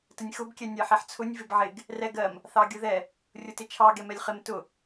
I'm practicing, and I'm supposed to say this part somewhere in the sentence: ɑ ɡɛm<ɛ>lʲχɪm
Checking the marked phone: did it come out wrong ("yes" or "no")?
no